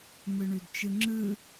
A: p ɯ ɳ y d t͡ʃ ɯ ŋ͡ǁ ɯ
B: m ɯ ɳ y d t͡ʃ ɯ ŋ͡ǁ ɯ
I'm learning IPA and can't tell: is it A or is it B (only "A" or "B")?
B